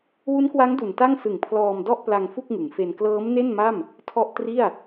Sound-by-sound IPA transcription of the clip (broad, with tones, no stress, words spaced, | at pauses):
wu˦˥nkwa˦˥ŋ du˨˩nta˥˩ŋsɯ˨˩ŋ pʰlɔː˧mdɔ˥˩ʔpla˧ŋ fu˥˩k̚ŋɯ˩˦ŋfe˧n klɤː˦˥mne˥˩nma˥˩m | tʰɔ˥˩ʔ tri˥˩a̯